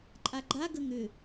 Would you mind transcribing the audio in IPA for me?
ǃʼaɡ͡ǃa ɡəŋʏ

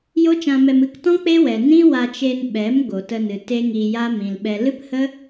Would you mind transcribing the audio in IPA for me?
jo˦t͡ʃã˧mɛ˧m ɨ˧ktɔ̃˦ k͡pe˦wɛ˨ nĩ˦wa˧t͡ʃe˧n ɓɛ˨˦m ɡo˨tə˧nɨ˨ te˦ŋi˧ja˦ mĩ˨lɓɛ˧ lɨ˦phə˦

